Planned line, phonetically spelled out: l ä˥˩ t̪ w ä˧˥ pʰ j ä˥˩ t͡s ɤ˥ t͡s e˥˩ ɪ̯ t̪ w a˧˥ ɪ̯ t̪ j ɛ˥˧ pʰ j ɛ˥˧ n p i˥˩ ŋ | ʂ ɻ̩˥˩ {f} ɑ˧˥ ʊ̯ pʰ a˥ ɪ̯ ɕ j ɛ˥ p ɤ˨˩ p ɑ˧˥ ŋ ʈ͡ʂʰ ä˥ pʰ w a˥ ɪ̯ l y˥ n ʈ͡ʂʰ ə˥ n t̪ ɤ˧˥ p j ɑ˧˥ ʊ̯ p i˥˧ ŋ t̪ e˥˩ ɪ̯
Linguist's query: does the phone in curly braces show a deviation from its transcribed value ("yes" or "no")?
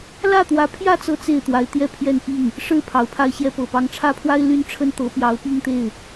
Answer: yes